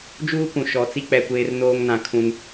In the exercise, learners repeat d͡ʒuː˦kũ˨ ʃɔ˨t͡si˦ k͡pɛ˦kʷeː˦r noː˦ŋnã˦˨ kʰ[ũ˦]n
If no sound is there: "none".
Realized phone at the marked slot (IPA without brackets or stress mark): ũ˦